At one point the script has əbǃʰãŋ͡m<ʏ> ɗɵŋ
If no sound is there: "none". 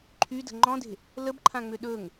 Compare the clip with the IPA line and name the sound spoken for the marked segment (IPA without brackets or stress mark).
ʏ